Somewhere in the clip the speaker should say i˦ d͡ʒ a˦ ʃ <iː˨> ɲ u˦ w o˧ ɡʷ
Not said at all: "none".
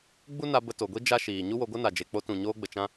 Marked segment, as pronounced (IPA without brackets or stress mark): iː˨